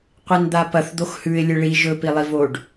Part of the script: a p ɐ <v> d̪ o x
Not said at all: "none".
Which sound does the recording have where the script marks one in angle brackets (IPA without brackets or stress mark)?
θ